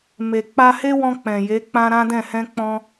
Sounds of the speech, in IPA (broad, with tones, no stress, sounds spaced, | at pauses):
m e˨ k͡p a˧ h e˦ w ɔ̃˧ k͡p ɛ̃˨ j e˨˦ k͡p ã˦ ɾ ã˦ d ɛ̃˦˨ h ɛ̃˧ k͡p ɔ̃˧